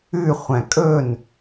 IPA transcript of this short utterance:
ʉ χʷ æ̃ kʼ ɵ n

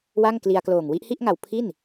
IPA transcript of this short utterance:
w a˥˩ ŋ k l i˧ a̯ k l oː˨˩ ŋ w i˦˥ ʔ h i˥˩ ʔ ŋ a˨˩ w pʰ i˥˩ n

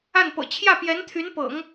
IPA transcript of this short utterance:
a˥˩ n p ɤ̰˨˩ t͡ɕʰ j ä˥˩ p j ɛ˧˥ n t̪ʰ y˧˥ n p ɤ̰˨˩˦ ŋ

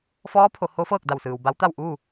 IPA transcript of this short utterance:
f ɔː˧˥ pʰ o˩˧ h o˧˥ f ɤː˥˨ k̚ d a˧˩ w s ɯː˩ w b a˧˥ w t̪ a˥˨ w ʔ uː˥˨

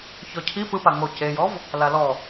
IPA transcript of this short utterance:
ç ɔ cʰ i p ɯ p a ŋ o c e j ɔ v | l a l ɔ

